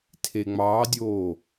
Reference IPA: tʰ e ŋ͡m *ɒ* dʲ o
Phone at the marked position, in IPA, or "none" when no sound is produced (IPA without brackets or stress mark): ɑ